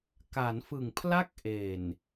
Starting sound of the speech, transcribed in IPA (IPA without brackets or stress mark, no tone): k